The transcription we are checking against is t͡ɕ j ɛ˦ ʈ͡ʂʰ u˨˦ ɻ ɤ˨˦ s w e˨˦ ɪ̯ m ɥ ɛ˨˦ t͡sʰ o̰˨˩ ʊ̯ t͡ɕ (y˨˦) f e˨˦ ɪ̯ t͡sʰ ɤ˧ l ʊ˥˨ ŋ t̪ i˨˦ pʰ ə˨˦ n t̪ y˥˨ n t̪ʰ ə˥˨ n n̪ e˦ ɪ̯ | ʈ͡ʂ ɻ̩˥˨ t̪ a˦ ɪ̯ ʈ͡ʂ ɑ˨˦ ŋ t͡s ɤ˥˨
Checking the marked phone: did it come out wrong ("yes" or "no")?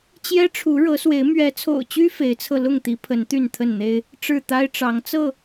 yes